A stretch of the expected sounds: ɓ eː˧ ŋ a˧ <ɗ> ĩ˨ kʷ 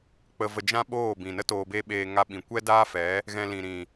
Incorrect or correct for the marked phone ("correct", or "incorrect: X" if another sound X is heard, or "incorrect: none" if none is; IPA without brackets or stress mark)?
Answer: incorrect: ɓ